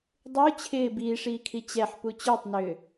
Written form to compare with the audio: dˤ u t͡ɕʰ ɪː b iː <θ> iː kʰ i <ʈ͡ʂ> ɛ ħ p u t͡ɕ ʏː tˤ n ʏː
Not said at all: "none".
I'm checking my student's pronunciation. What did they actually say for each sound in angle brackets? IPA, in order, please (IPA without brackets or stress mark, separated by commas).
ʂ, t͡ɕ